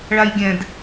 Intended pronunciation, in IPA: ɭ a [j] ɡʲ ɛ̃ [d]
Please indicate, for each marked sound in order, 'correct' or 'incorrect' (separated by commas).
correct, correct